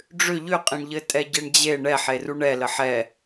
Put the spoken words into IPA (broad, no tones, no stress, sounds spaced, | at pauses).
ɖ͡ʐ ʏ ʎ ʏ qʼ ẽ ɳ ʎ ɘ tʼ ɛ ɟ e ɳ d͡ʑ e ɳ ɛ ħ e r u ɳ ɛ l ə ħ ɛ